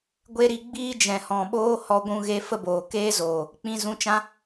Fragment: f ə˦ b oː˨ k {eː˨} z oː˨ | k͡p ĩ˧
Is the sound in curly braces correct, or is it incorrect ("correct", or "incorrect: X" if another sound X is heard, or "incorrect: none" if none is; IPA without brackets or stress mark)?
incorrect: eː˦